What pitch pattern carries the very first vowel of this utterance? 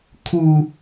low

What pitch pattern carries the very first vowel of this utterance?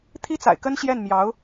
high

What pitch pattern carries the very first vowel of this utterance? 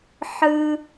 high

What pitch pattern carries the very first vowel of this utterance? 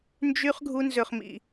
high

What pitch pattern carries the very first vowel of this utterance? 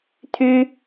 high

